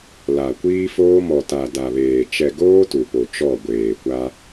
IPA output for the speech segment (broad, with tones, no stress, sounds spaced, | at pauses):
l a˨ kʷ iː˦ f oː˦ m ɔ˨ t a˨ d a˨ β eː˨ t͡ʃ ɛ˨ ɡ oː˦ t u˨ p o˨ t͡ʃ ɔ˦˨ ɡʷ eː˨ kʷ a˦